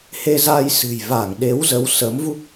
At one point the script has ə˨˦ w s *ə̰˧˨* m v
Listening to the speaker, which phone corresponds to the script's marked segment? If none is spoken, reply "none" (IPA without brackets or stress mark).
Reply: ə˨˦